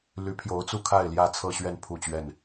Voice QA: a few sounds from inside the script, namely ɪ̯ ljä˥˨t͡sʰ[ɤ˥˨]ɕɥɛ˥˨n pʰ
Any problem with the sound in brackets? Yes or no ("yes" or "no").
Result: no